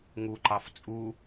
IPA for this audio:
ŋ u ǃ ɑ f t͡sʼ u

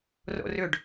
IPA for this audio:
r o̰ r ʏ ɖ

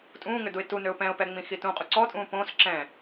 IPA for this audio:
tʼ ũː ŋ ʏ d u ɪ̯ t u n ø ʊ̯ p ɛ̃ ʊ̯ p ɛ ŋ͡m ĩ x i t ũ qʼ u ǀ ɔ tʼ ũː p õ s ǁ ɛ̃

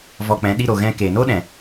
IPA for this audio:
v ɔ˧ k͡p ɛ̃˨˦ ɗ i˧ ɾ o˨ ɣ ɛ̃˧ k e˨ n o˦ ɗ ɛ̃˨

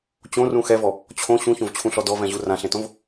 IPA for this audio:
t͡ɕ õ r ũ x ɛ v ɔ | t͡ɕʰ õ ɕ ũ ç õ v t͡ɕʰ ũ ɬ ɔ d ɔ v ɛ̃ ʑ u r ã ɬ ẽ t õ v

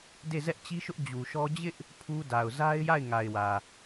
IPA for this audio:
d e˦˨ z ɛ˦ ʔ t͡ɕ i˦ ʃ ʊ˦ ʔ d͡ʑ u˨ ʃ ɔ˦ d͡ʑ ɪ˦ ʔ | pʰ u˦ d a˨ ʊ̯ z a˦ ɪ̯ j a˦˨ ɪ̯ ŋ a˨ ɪ̯ w ä˨

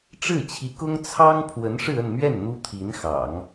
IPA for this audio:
ʈ͡ʂ ɻ̩˥˩ t͡ɕʰ i˧˥ k ʊ˥ ŋ t͡sʰ ɑ˥ ŋ pʰ w ə˧˥ n ʂ ɻ̩˥˧ ə˥˧ n m ɥ ɛ˥˩ n n̪ u˥ t̪ʰ i˧˥ n x ɑ̰˨˩˦ ŋ

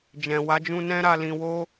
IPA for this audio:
d͡ʒ ɛ̃˨ w a˨˦ d͡ʒ ũ˧ n ɛ̃˦ ɾ a˧ l ĩ˧ w o˦

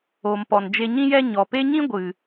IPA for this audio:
o˨ m p ɔ˨ n d͡ʒ e˧ ɲ ĩ˧ j ɛ˧ ɲ ɔ˨ p e˦ ɲ ĩ˦ ɡʷ ɨ˨

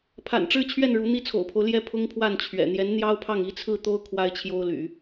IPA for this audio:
pʰ a̰˨˩ n ʈ͡ʂ ɻ̩˥˧ t͡ɕʰ ɥ ɛ˥˩ n ɻ u˧˥ n̪ i˥ t͡sʰ o̰˨˩ ʊ̯ pʰ o˦ ʊ̯ l j ɛ˥˩ pʰ ʊ˥ ŋ pʰ w a˥˩ n t͡ɕʰ ɥ ɛ̰˨˩ n̪ j ɛ˧˥ n n̪ j ɑ˥ ʊ̯ pʰ ɑ˥˩ ŋ i˥ t͡sʰ ɹ̩˥˩ t̪ o˥ ʊ̯ kʰ w a˥ ɪ̯ t͡ɕʰ j o˥ ʊ̯ l y̰˨˩˦

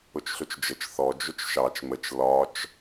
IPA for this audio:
ʊ t͡ʃ ɬ ʊ t͡ʃ d͡ʒ ə t͡ʃ θ ɔ d͡ʒ ʊ t͡ʃ ʃ ɑ t͡ʃ m ə t͡ʃ l ɒ t͡ʃ

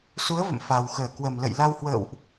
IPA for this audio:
s u˨˦ ə̯ v ə̰˧˨ m f a˨˩ w x əː˧˩ k w ə˨˩ m l ə̰˧˨ j l a˧ w h w ə̰ː˧˨ w ʔ

